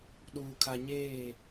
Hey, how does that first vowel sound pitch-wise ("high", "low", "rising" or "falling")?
low